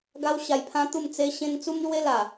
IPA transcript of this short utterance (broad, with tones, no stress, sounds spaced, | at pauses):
ɡ a˦ w ɕ a˧ j pʰ ã˦ t̪ u˥˧ m t͡s e˦ ɕ ẽ˦ n t͡s u˦ m l w e˦ l a˨˩